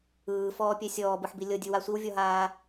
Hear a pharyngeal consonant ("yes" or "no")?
yes